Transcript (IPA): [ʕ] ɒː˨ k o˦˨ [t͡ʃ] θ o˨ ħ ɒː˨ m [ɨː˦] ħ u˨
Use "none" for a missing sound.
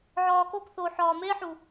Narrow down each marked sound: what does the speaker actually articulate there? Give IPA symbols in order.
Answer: ʕ, k, eː˦

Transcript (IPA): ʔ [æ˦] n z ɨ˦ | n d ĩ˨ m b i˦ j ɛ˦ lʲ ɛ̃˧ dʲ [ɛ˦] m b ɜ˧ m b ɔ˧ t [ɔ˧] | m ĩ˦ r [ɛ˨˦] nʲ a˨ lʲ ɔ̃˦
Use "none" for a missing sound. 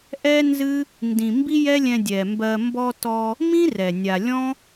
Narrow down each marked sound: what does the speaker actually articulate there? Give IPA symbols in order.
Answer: ɛ˦, ɛ˨, ɔ˧, ɛ˨

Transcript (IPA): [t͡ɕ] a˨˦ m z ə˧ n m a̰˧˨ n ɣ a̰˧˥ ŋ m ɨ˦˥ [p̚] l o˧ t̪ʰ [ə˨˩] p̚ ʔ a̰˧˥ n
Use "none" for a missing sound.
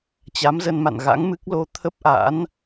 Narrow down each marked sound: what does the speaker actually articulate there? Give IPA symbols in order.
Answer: t͡ɕ, k̚, ə˦˥

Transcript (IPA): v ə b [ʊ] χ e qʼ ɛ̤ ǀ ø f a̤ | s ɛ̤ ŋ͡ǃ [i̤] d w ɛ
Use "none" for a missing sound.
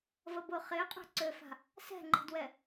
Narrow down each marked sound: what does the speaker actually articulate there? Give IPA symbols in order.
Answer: ʊ, i̤

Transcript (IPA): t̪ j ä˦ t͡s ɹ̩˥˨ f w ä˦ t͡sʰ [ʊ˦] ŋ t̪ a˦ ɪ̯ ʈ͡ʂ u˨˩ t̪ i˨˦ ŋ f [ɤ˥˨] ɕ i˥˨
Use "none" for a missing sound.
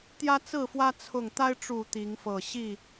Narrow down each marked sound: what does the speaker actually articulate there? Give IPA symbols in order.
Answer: ʊ˨˩, ɤ˨˩

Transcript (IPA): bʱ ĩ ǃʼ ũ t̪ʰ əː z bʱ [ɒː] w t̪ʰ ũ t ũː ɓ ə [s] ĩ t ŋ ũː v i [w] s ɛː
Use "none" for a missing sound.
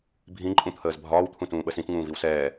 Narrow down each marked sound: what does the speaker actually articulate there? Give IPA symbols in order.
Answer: ɒː, s, w

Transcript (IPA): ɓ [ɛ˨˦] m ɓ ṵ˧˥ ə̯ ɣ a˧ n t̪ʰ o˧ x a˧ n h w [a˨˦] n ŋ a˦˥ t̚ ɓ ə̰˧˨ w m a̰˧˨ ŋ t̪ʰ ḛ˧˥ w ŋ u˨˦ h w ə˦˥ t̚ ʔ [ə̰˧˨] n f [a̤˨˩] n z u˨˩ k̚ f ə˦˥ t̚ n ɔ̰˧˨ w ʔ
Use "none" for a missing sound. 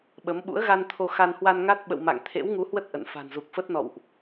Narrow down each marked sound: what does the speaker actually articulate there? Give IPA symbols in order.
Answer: ə˨˦, a˧, ə̰˧˨, a̤˨˩

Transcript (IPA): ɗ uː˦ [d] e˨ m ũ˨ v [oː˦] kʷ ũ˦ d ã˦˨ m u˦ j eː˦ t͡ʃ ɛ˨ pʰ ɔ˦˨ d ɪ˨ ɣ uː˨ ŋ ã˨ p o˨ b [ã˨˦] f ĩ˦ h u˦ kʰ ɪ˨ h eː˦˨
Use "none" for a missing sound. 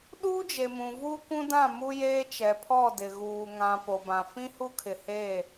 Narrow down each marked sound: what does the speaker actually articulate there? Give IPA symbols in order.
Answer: d͡ʒ, uː˦, ã˨

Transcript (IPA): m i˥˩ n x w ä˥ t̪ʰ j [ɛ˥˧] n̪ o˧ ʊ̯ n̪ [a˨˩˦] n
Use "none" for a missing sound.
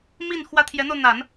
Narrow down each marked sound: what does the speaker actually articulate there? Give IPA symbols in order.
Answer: ɛ˧˥, a˨˩˦

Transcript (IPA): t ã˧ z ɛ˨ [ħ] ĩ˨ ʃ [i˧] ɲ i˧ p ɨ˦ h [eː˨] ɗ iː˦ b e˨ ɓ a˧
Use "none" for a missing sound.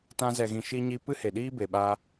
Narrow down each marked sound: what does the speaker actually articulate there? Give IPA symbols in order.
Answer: ɣ, i˧, e˨

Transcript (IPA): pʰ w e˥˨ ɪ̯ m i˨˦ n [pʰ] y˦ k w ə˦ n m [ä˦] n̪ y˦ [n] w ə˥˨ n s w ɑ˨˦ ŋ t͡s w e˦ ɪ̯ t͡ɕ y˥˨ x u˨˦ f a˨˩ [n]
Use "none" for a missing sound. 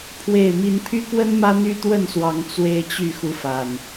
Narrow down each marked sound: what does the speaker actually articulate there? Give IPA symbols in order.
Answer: pʰ, ä˦, t̪, n

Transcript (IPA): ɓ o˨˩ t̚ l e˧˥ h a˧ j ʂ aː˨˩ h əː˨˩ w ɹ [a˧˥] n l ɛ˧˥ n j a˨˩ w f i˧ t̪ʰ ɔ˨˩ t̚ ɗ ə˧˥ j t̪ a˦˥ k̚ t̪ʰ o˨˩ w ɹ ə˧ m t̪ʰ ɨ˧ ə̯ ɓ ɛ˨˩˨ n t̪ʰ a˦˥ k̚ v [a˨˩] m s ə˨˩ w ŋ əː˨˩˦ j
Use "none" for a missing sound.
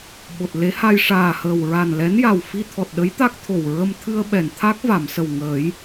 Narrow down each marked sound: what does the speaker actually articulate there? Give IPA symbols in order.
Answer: a˨˩, a˨˩˨

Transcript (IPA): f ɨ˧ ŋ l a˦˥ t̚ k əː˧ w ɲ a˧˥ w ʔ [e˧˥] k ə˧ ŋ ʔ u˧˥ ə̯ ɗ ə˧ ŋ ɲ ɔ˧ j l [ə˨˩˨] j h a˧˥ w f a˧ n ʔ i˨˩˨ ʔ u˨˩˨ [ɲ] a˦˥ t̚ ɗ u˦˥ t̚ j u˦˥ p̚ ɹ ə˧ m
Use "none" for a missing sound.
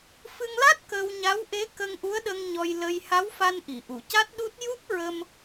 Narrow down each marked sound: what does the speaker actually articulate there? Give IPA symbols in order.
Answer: e˧˥, ə˧, c

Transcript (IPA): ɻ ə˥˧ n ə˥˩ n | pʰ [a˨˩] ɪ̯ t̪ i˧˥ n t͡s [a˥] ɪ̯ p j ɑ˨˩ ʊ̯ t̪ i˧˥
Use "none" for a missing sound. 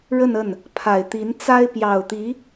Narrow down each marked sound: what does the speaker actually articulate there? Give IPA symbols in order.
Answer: a˨˩, a˥

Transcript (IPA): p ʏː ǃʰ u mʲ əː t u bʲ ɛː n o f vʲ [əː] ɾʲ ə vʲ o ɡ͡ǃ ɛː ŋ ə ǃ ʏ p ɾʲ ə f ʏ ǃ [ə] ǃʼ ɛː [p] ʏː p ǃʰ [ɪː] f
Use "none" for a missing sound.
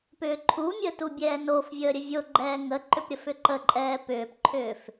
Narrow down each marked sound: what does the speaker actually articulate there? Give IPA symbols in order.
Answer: əː, ə, p, ʏː

